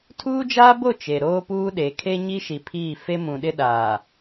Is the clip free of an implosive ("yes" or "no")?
no